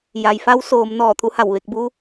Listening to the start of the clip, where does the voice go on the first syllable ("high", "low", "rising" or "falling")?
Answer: low